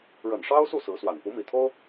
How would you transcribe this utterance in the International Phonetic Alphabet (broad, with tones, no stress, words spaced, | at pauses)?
ɻə˨˩nʂɑ˥ʊ̯su˥˩ sɹ̩˧˥swa˨˩n pu˧˥mi˨˩t̪ʰo˥ʊ̯